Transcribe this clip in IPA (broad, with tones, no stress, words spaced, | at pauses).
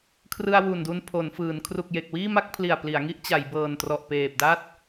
kʰrɯ˧a̯wu˨˩ndu˧n pʰo˩˦nfɯː˩˦n kʰru˨˩k̚je˨˩k̚wiː˥˩ma˥˩k̚ pʰli˨˩a̯pli˩˦a̯ŋi˦˥ʔ t͡ɕa˩˦jbɤː˨˩ntrɔ˨˩ʔpeː˨˩p̚ da˥˩t̚